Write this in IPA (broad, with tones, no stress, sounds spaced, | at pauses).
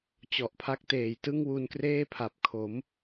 t͡ɕ ɔ˨˩ ʔ pʰ a˦˥ k̚ t eː˨˩ j t ɯ˥˩ ŋ w u˧ n k r eː˥˩ pʰ a˨˩ p̚ kʰ o˩˦ m